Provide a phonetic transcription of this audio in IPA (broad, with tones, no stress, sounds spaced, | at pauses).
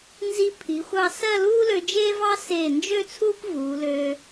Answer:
n z i˧ pʰ i˩˧ xʷ ɑ˧ s ɜ˥˧ l uː˥ l ø˧ d͡ʒ eː˥ v ɑ˥ s eː˧˩ n d͡ʒ ø˥˧ t͡sʰ uː˥ p v uː˩˧ l ø˧